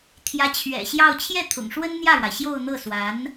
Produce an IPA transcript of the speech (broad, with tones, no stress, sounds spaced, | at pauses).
t̪ʰ j ä˧˥ t͡ɕʰ ɥ ɛ̰˨˩ ɕ j ɑ˥˧ ʊ̯ t͡ɕʰ j ɛ˥˩ t̪ʰ ʊ̰˨˩ ŋ ʂ w ə˥ n n̪ j ä˥˩ ɻ w a˩ ɪ̯ ɕ j o˥˧ ʊ̯ n̪ ɤ˥˩ s w a˧˥ n